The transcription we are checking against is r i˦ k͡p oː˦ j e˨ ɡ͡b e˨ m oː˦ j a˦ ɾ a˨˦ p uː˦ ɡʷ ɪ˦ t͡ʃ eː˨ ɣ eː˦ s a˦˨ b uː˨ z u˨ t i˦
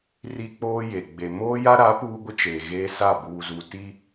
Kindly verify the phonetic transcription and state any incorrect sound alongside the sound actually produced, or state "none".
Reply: none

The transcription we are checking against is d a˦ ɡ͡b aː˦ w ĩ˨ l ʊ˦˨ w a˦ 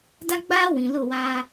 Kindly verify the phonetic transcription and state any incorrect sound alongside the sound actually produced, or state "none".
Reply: none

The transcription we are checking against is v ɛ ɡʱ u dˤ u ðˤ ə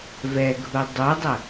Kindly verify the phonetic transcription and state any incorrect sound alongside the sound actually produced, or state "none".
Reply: ðˤ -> dˤ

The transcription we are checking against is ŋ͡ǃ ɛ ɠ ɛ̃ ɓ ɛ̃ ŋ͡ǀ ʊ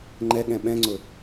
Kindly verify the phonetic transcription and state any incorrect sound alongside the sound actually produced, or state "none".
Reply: none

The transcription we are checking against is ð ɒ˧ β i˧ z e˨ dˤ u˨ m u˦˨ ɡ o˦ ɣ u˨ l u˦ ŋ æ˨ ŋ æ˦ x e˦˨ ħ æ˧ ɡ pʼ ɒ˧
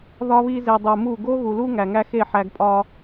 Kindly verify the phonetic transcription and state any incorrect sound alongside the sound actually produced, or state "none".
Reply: none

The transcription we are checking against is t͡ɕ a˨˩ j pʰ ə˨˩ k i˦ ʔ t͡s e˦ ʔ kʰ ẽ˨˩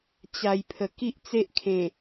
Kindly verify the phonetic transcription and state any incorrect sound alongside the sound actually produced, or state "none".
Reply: none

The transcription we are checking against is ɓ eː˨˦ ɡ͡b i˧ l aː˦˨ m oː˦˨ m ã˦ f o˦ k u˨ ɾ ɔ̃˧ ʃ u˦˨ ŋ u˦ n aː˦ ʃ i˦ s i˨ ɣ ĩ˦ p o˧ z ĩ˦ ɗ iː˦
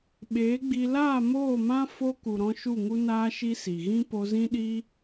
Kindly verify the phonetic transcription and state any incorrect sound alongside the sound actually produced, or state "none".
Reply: none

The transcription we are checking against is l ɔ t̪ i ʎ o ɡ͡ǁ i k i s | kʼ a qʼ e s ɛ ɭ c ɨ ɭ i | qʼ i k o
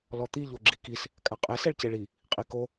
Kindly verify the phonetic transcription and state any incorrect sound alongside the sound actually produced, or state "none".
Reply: ɨ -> e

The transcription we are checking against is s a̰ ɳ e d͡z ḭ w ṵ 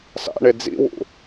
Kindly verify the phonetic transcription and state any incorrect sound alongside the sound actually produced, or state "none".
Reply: none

